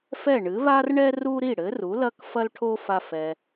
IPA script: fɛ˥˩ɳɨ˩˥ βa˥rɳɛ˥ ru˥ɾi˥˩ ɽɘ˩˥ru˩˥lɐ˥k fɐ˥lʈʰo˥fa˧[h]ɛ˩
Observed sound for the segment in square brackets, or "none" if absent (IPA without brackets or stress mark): f